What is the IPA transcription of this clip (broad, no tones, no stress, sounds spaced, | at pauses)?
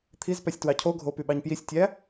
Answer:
t̪ʰ i z p æ sʲ t w ɑ cʰ o ɡʱ o p y ɓ ɑ ɲ p j i sʲ tʲ æ